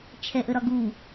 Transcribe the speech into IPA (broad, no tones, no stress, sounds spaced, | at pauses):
t͡ʃʰ ɛ ʔ ə ɾ ɒ ɡ u